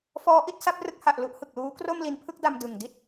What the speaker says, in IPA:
f ɔː˦˥ ʔ i˥˩ t̚ s a˦˥ p̚ r ɯ˦˥ k̚ h a˨˩ ʔ l u˦˥ ʔ h ɯ˨˩ k̚ l uː˦˥ k r o˥˩ m l i˧ n pʰ ɯ˥˩ k̚ d a˧ m d ɯ˨˩ ŋ d i˥˩ t̚

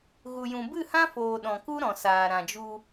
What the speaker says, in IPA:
ɣ u˨ j ũ˨ b ɨ˦˨ h ã˦ f oː˨ ɗ ɔ̃˨ k u˦ ɾ ɔ̃˨ s aː˨ ɾ ã˨ d͡ʒ u˧

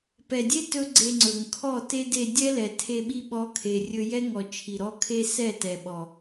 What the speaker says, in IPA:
p ɛ˨ dʲ e˦ t ɵ˦ ɡ͡ǀ e˧ ŋ͡ǀ ɵ˨ ŋ kʰ ɔ˦˨ t e˦ d e˧ dʲ ɛ˦ l ɛ˨ tʰ e˧ ɓ i˧ ɓ ɔ˧ kʰ e˨ rʲ ɵ˧ j ɛ˦ ŋ ɔ˨ t͡ʃʰ i˨ ɾ ɔ˦ kʰ e˦ s ɛ˦˨ t ɛ˨ ɓ ɔ˨

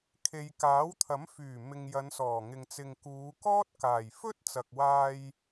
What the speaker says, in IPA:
kʰ e˨ j k aː˨˥ w t̪ʰ ɐ˨˥ m f yː˨˩ m ɪ˨ ŋ j ɐ˨˧ n s ɔː˨˩ ŋ ɪ˨ ŋ t͡s ɪ˨ ŋ k uː˨˧ k ɔː˥ t̚ k aː˨˩ j f ɵ˥ t̚ t͡s ɐ˨ k̚ w aː˧ j

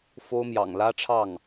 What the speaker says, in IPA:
f o˥ ʊ̯ m j ɑ̰˨˩ ŋ l ä˥ ʈ͡ʂʰ ɑ˥˩ ŋ

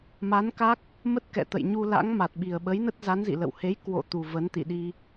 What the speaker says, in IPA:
m a˨˦ n k a˦˥ k̚ | m ə˦˥ t̚ k ɛ̰˧˨ t̪ ə̰˧˨ j ɲ u˧ l a̰˧˥ ŋ m a˨˩ t̚ ɓ i˨˩ ə̯ ɓ ə˨˦ j n ə˦˥ t̚ z a˨˦ n z ḭ˧˨ l ə̰˧˨ w h e˨˦ j k w o̰˧˨ t̪ u˨˩ v ə˨˦ n t̪ ḭ˧˨ ɗ i˧

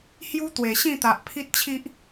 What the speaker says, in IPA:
h j u˦ t̪ w e˨˩ ɕ ĩ˥˧ t̪ a˨ ʔ pʰ i˦ t̚ t͡ɕʰ i˦ ʔ

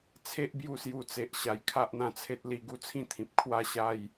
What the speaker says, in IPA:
t͡sʰ e˦ ʔ b j u˧ s j u˨˩ t͡s e˨ ʔ ɕ a˨˩ j kʰ a˦ ʔ n̪ ã˧ t͡sʰ e˦ t̚ l i˧ ɡ u˦ t͡sʰ ĩ˥˧ t̪ʰ ĩ˨ p̚ kʰ w a˥˧ ɕ a˥˧ j

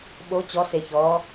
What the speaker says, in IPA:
ɓ o t͡ɕ ɔ s e ç ɔː

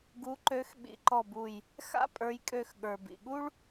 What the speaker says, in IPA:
ɡ u˨˦ ǃ ø˨˦ x ɓ ḭ˨˦ ǃ ɔ˧˩ b u˧˩ j | x a̰˥ pʼ ə˞˨˦ j kʼ ø˧˩ x ɠ ə˞˩ b ḭ˩ ɠ u˥ ɭ

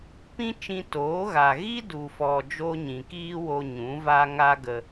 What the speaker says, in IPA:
p ĩ˦ t͡ʃ ĩ˧ t oː˨˦ ɣ a˨ ɣ i˦ d u˨ f ɔ˨ d͡ʒ o˦ ɲ ĩ˨ k iː˦ w o˧ ɲ ũ˨˦ v a˦ ŋ a˦ ɡ ə˧

